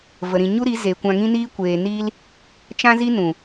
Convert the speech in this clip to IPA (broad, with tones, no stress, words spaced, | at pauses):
və˨ɾĩ˨ ɲu˦ɾi˨˦ zeː˨kʷã˧ŋĩ˦niː˦ kʷeː˧ niː˦l | t͡ʃã˦zi˦nũ˨